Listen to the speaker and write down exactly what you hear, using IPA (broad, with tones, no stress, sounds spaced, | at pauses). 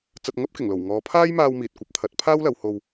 t͡s ɐ˧ t̚ ŋ ɐ˥ p̚ k ɪ˨˩ ŋ l o˨˩ w ŋ ɔː˨˧ pʰ aː˥ j m aː˧ w m iː˨ t̚ kʷ ɐ˨˥ p̚ t̪ʰ ɐ˨˥ t̚ pʰ aː˥ w l ɐ˨˧ w h o˧ w